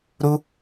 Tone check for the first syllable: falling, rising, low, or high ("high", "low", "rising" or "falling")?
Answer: high